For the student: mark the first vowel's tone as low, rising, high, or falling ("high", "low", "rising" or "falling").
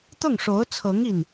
falling